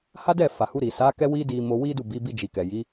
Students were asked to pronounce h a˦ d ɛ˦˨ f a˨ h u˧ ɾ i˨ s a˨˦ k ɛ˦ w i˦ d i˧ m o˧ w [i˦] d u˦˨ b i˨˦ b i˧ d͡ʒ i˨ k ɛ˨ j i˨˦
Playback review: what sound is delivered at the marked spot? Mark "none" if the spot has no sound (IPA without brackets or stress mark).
i˦